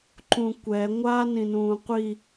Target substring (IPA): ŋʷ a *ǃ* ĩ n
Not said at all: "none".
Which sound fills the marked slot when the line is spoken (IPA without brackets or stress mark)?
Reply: n